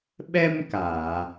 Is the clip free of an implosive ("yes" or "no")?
no